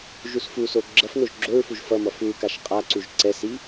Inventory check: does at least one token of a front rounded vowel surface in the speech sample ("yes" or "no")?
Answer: no